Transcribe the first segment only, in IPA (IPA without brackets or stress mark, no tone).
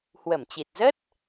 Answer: h